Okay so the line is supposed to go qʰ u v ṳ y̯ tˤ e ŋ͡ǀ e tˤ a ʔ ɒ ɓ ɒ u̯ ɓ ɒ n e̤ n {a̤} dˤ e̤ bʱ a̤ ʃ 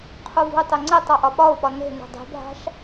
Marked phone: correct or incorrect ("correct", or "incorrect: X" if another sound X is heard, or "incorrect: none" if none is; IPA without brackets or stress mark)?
correct